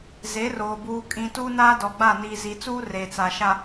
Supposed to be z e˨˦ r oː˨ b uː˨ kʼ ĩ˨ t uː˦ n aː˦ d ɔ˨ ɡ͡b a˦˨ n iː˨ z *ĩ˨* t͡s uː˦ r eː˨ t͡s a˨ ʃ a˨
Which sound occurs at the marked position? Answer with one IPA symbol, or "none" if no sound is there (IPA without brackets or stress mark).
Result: i˨